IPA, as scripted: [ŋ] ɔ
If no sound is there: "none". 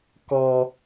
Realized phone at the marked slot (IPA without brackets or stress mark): k